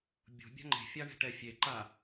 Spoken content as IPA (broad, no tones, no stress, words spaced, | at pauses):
bʲo̤ bʲa̤ŋ͡ǃe̤ fʲaɳɛ̤ʈɛfʲe ǃa